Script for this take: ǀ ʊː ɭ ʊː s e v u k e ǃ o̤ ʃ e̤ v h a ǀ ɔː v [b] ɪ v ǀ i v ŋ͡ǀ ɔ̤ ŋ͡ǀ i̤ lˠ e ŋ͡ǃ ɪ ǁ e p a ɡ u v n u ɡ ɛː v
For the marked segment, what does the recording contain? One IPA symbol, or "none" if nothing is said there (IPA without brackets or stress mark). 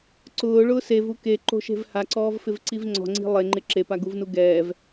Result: f